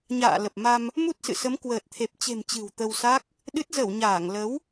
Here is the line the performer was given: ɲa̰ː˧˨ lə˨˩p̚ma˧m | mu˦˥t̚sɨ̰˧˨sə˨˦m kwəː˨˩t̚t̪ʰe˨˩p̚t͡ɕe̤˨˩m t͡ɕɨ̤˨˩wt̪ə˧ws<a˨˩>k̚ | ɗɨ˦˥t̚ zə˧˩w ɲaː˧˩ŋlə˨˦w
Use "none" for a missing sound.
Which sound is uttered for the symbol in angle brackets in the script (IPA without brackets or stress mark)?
a˦˥